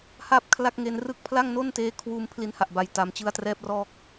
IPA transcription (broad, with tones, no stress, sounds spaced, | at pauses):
h a˥˩ p̚ kʰ l a˥˩ k̚ ŋ e˧ n r ɯ˥˩ k̚ pʰ l a˥˩ ŋ n o˥˩ n t eː˦˥ kʰ w uː˧ m pʰ l i˧ n h a˨˩ ʔ b a˨˩ j t a˩˦ m t͡ɕ ɯ˦˥ a̯ t r ɛː˦˥ p̚ r ɔː˦˥ k̚